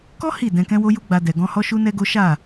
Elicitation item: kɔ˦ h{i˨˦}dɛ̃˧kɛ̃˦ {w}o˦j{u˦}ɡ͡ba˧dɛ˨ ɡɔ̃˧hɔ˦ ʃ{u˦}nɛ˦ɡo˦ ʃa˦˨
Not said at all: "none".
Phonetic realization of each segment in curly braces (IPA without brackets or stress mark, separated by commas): i˦˨, w, u˦, u˦